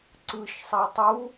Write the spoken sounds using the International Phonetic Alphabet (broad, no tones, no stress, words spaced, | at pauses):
ǀɯʃsˤɛ tˤu